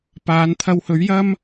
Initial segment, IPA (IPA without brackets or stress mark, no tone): p